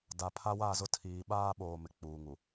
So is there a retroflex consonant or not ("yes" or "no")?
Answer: no